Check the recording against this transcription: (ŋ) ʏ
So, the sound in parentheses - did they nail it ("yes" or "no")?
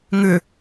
yes